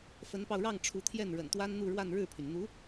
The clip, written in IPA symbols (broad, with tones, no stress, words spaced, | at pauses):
fə˧˥npɑ˧ʊ̯ɻɑ˥˩ŋ ʈ͡ʂʰu˧˥t̪ʰjɛ˥˩nɻə̰˨˩n t̪wa˥nn̪u˥˧ ɻwa˥˧nɻɻ̩˥˩pʰy˩n n̪u˧˥